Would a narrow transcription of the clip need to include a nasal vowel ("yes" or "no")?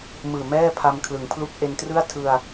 no